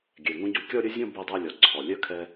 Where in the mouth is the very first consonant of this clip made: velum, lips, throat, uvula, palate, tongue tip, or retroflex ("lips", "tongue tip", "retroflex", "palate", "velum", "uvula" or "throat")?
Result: velum